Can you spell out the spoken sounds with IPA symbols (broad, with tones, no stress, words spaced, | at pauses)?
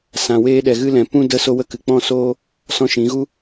sã˨weː˧ɗɛ˨ ɣɨ˧lɛ̃˨ pũ˦də˦ so˦wə˦kɨ˨ k͡pɔ̃˦soː˦ | sɔ̃˧ʃĩ˨˦ɣu˦